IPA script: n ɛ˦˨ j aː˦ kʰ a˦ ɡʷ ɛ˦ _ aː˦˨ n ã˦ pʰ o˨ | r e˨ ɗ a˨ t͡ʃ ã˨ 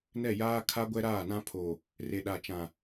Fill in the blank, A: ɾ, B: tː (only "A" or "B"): A